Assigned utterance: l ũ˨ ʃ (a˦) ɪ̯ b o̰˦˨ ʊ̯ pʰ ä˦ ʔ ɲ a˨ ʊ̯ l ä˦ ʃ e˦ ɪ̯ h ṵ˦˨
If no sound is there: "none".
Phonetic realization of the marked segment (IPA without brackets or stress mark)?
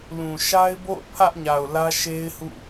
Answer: a˦